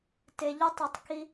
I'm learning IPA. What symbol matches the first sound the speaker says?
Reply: t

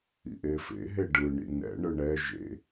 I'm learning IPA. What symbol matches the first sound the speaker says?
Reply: ḭ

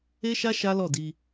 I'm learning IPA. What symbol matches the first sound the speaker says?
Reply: e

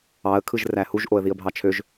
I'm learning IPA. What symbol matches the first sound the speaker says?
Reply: ɑ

